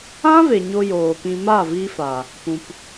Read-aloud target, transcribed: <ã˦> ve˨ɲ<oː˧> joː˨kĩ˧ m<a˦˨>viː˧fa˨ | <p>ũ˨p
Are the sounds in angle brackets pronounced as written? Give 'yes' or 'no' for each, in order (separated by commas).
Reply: yes, no, yes, yes